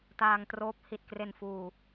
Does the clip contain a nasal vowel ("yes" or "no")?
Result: no